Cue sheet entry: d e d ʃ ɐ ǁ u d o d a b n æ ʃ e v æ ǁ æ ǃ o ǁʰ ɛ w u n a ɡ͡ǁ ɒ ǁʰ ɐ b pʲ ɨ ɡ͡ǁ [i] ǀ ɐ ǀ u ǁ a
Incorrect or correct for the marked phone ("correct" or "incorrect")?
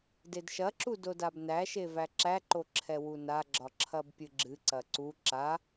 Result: incorrect